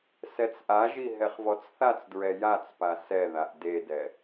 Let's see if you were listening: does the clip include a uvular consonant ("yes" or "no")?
yes